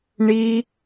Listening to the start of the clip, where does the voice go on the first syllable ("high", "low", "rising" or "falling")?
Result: high